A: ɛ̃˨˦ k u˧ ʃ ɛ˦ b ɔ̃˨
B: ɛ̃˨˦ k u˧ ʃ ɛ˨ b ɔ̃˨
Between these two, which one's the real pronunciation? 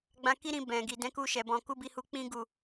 B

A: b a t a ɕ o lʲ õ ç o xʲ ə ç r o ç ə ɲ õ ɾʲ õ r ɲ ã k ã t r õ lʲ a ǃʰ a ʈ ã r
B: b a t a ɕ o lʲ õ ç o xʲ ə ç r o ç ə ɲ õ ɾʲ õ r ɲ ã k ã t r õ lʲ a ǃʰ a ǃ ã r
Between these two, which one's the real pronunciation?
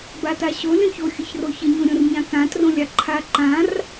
B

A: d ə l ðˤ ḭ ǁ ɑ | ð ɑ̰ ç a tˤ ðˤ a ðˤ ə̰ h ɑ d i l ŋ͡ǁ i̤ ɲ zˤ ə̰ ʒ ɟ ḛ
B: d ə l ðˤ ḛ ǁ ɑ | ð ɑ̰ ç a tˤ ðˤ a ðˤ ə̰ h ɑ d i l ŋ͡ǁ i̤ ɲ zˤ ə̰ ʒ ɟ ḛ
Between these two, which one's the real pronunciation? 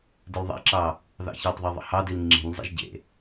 A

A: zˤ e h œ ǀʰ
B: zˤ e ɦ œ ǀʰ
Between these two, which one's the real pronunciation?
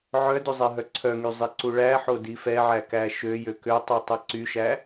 B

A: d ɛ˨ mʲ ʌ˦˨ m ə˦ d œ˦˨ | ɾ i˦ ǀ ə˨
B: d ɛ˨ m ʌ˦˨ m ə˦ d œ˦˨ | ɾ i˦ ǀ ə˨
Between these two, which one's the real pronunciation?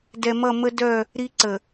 B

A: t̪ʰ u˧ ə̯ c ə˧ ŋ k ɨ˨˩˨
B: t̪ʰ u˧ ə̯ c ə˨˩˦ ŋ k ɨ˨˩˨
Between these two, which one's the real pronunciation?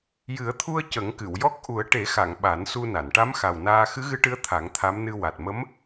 B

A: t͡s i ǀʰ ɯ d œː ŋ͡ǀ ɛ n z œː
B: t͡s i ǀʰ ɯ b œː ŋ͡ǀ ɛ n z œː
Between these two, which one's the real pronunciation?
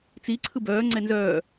B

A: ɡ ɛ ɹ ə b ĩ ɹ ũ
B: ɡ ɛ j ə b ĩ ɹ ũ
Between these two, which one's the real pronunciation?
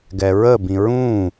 A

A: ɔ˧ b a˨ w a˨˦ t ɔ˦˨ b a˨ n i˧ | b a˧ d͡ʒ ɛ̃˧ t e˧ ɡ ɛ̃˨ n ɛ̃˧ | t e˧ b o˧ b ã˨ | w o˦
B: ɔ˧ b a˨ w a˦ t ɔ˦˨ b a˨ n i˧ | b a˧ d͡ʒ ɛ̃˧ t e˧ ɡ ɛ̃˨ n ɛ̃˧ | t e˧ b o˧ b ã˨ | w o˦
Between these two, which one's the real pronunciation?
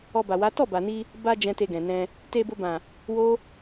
A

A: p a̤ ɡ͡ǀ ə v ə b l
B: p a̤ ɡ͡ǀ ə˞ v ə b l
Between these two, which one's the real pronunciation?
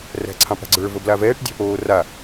B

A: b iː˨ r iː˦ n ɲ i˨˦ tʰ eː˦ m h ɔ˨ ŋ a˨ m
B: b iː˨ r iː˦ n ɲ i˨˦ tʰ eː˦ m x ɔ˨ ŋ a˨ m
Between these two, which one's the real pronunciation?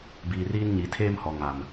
A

